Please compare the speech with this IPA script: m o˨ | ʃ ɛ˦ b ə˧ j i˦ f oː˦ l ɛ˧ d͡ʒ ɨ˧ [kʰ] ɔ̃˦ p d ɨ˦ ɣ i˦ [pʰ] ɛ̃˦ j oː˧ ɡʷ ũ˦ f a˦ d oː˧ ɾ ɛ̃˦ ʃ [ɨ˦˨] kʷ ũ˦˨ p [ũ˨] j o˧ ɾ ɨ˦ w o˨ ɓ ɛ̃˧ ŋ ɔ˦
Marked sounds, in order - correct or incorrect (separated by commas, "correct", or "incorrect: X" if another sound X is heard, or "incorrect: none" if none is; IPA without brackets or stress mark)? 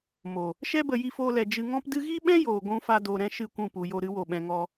incorrect: ŋ, incorrect: ɓ, correct, incorrect: u˨